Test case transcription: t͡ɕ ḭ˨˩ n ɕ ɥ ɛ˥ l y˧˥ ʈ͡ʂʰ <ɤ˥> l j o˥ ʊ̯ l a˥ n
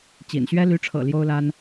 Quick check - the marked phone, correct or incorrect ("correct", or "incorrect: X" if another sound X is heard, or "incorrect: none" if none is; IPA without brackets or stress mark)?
incorrect: ɤ̰˨˩